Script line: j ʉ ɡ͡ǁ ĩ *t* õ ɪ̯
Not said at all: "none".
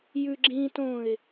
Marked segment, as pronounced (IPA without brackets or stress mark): t